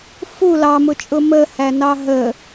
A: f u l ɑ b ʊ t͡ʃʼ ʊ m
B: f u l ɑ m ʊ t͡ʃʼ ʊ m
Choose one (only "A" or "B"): B